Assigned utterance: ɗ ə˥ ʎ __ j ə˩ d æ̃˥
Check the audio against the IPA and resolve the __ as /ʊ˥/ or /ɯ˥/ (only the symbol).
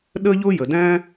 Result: ʊ˥